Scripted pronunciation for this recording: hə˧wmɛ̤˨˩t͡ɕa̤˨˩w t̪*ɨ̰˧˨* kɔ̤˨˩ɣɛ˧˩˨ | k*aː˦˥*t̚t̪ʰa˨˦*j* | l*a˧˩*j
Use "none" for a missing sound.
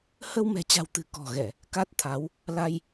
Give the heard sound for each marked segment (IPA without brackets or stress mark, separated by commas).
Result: ɨ̤˨˩, a˦˥, w, a˧